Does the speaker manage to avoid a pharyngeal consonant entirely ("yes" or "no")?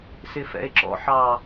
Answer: no